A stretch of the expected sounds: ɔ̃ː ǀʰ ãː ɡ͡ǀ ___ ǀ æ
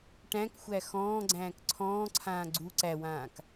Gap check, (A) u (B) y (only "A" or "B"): A